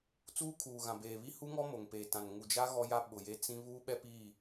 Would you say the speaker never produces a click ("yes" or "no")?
yes